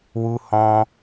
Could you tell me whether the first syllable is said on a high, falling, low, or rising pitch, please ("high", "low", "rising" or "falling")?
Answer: high